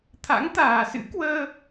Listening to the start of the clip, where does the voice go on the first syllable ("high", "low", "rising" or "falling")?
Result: rising